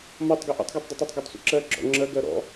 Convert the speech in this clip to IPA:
m ɒ tˤ ɡ ɪ ʔ ṵ tˤ ɡ ɑ tˤ dˤ ɪ tˤ ɜ tˤ ɡ ʊ tˤ sʷ ə̰ ǁ ɜ ɡ͡ǁ ɔ̰ ŋ͡ǁ ɜ ɡ ɜ ɾ ɔ̰

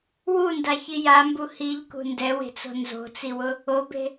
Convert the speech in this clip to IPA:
w u n d a ç i j a m b u h i ʎ k ṳ n d ɛ w e̤ t͡s o̤ n z o̤ t͡s i w ʊ | o b e̤

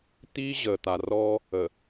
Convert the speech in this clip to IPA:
t̪ iː˦ ʑ əː˨ t̪ a˨ r ɔ˦ | ə˨

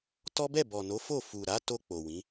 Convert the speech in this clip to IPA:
t ɔ˦ b ɛ˦˨ b ɔ˨ n o˨˦ f o˦˨ f u˨ ɾ a˨˦ t o˧ k͡p o˨ w ĩ˨˦

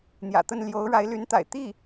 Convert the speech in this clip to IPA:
n̪ j ä̰˨˩ t̪ ə˥˩ n l j o˧˥ ʊ̯ ɻ a˧˥ ɪ̯ l y˧˥ n t̪ a̰˨˩ ɪ̯ t̪ i˥˩

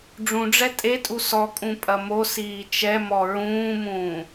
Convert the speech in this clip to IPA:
ɖ͡ʐ ũ ɖ͡ʐ ɛ tʼ e tʼ u s ɔ kʼ ũ pʼ ɐ m o s iː t͡ʃ ɛ m ɔ ɹ ũː m ũː

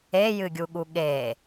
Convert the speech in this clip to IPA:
e j ɨ ɡʲ u ɠ u ɠ e

